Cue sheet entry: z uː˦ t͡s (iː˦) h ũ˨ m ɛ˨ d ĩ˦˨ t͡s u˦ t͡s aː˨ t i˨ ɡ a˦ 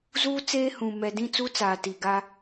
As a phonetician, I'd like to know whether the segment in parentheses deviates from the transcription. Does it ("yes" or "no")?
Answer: yes